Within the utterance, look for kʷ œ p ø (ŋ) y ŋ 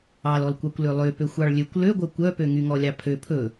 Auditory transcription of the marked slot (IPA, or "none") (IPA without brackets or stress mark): ŋ